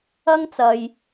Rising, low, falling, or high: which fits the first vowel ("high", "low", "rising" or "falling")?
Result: high